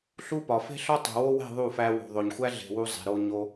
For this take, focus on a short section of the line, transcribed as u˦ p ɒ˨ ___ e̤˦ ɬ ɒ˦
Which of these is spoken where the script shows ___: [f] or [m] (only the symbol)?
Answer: f